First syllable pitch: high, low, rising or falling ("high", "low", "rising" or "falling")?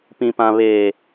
low